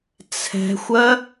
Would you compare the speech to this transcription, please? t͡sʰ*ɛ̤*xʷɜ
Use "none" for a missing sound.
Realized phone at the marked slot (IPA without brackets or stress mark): ɛ̤